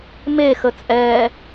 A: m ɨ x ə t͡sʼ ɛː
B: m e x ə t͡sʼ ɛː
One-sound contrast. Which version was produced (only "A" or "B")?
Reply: B